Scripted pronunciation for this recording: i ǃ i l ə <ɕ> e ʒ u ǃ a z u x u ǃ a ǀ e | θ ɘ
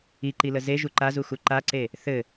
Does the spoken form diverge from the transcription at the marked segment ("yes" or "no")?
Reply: yes